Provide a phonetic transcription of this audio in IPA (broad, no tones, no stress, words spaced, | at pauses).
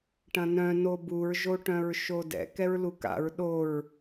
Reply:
ʈɐ̃nœ̃ nobuɹ ʒoʈœ̃ɹʃodɛ̰ kɛɹluka̰ɹ ɗoɹ